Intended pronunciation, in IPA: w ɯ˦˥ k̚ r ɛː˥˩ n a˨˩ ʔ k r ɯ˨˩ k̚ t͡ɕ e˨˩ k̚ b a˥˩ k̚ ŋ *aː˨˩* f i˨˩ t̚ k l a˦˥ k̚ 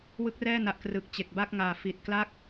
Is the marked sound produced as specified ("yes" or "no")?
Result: yes